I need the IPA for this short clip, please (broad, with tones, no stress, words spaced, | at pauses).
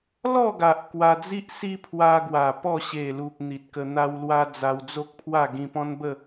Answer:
lɔ˥˧ɡa˨ʔ kwa˧d͡zi˦ʔsi˦ pʰwa˧ɡwa˨˩ pɔ˥˧ ɕe˨˩lu˨p̚ n̪i˨t̚kə˧ n̪a˧wlwa˧ d͡za˧wd͡zo˦k̚pʰwa˥˧ ɡĩ˧pɔ̃˦nbə˥˧